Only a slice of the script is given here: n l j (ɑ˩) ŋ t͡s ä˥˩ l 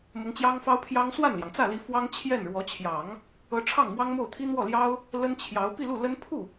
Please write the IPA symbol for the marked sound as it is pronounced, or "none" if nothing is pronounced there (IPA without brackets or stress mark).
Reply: ɑ˩